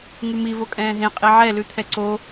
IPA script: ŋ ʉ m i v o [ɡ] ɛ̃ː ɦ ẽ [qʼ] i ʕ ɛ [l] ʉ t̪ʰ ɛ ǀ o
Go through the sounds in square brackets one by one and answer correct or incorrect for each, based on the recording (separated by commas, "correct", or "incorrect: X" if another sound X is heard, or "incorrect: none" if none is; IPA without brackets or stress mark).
incorrect: kʼ, correct, correct